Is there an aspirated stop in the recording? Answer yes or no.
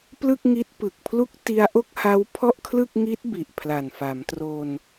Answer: yes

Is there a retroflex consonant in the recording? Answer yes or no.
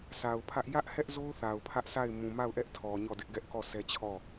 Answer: no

